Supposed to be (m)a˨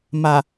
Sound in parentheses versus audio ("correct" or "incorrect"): correct